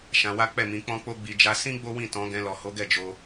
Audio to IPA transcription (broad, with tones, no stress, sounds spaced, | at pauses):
ʃ ã˧ w a˦ k͡p ɛ˦˨ m ĩ˨˦ k͡p ɔ̃˦ k͡p o˦ ɡ͡b i˧ d͡ʒ a˧ s ĩ˦ ɡ͡b o˦ w ĩ˦˨ t ɔ̃˨˦ ɡ ɛ̃˧ l ɔ˨ h o˨˦ ɡ ɛ˦˨ d͡ʒ o˧